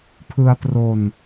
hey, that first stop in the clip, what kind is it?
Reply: aspirated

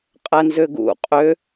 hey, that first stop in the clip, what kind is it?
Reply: ejective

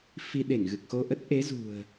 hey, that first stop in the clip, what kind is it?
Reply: implosive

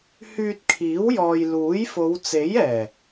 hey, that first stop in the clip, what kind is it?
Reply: plain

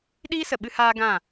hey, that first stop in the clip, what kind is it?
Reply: implosive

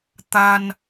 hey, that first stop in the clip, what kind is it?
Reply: plain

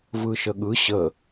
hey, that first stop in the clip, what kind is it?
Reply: implosive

